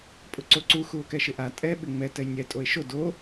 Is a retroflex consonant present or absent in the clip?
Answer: absent